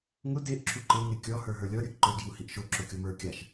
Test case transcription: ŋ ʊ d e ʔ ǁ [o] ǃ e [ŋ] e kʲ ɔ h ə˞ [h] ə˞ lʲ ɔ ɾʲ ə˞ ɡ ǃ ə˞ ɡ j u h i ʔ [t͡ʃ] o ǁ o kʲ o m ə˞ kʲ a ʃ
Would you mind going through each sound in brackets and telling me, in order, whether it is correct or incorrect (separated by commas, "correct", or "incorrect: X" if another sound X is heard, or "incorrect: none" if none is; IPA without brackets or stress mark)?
incorrect: u, correct, incorrect: ɦ, incorrect: ʃ